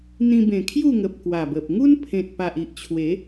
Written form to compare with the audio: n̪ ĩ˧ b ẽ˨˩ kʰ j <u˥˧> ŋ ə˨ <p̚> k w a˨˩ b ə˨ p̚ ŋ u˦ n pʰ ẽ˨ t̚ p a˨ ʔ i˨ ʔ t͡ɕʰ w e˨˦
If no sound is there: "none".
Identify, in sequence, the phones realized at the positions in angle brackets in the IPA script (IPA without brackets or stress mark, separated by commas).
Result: u˥˧, p̚